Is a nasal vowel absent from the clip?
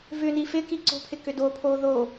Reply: yes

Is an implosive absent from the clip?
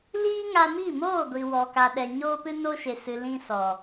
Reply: no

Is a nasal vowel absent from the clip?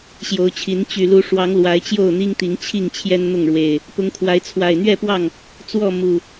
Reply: yes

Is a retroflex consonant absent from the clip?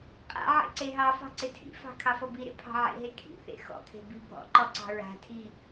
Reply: yes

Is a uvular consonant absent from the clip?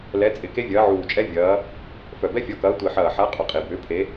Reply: no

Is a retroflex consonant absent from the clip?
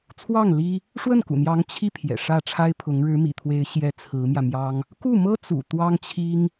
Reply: no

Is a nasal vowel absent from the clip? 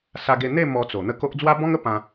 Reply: no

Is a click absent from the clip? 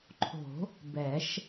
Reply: no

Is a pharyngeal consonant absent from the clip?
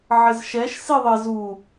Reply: no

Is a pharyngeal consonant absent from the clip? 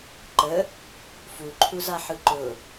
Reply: no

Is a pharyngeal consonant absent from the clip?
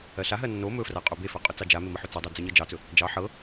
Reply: no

